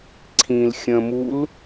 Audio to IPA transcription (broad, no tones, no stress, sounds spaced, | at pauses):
ǀʰ ĩ l xʲ ə̃ m u l